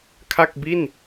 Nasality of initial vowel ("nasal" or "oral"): oral